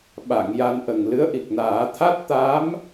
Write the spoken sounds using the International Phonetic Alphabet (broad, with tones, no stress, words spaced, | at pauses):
ɓa˨˩˨ŋ ja˧nʔə˨˩ŋ lɨ˧˥ə̯ʔi˨˩k̚naː˨˩˦ t̪ʰa˦˥t̚t̪a˧˥m